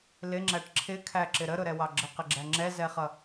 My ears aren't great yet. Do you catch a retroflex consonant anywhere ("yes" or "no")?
yes